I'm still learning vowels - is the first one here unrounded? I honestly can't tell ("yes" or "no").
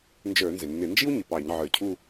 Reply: yes